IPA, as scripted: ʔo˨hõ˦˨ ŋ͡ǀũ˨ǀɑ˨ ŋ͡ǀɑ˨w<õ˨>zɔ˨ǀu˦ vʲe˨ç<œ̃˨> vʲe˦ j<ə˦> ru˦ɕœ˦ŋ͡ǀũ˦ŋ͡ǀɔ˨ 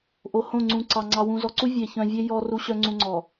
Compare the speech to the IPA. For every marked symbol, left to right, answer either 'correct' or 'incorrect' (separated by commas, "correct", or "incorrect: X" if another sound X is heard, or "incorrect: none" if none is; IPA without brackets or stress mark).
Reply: incorrect: ũ˨, correct, incorrect: ɔ˦